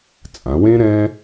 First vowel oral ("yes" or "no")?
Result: no